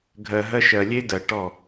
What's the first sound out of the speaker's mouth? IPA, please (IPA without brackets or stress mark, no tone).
ɡʱ